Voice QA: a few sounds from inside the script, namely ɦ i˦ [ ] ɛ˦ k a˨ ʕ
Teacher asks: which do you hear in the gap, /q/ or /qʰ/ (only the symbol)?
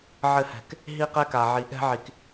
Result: q